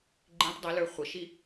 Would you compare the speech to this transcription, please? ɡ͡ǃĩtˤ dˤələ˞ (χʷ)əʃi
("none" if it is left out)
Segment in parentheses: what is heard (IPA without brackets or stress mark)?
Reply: χʷ